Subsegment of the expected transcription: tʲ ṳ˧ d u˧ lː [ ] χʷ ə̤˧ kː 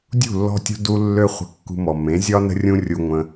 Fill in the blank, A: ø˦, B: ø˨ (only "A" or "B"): A